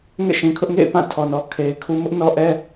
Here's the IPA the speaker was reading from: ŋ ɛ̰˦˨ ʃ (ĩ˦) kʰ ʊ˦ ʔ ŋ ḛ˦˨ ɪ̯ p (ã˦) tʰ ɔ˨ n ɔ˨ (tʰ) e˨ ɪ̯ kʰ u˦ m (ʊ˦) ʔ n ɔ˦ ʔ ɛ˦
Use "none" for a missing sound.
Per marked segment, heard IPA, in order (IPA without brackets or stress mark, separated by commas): ĩ˨, ã˦˨, kʰ, ʊ˦